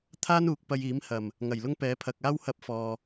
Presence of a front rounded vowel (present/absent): absent